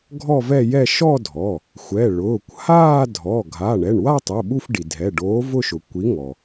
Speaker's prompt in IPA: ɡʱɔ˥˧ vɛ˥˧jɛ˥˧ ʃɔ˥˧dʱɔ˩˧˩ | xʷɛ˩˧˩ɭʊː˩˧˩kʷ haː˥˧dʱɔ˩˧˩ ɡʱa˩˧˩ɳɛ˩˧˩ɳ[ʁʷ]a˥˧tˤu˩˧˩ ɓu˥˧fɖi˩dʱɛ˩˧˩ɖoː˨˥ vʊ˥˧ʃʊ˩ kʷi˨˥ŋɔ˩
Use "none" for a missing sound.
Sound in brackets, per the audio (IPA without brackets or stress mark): w